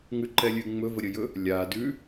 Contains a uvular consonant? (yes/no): no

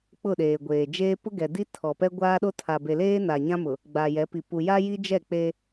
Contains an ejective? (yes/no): no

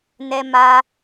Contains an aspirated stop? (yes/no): no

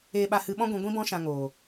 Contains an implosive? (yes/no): yes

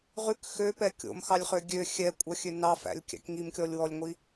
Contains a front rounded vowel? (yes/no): yes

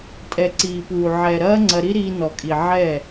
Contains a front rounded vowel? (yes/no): no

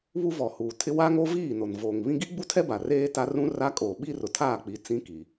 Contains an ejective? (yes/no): yes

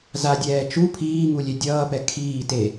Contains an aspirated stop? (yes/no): yes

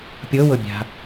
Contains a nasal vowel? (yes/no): no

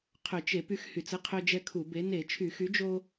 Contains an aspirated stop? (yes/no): yes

